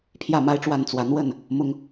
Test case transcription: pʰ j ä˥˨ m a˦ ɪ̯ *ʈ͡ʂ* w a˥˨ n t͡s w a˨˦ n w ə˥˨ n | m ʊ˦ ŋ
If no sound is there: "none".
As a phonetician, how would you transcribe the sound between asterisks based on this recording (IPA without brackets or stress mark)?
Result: ʈ͡ʂ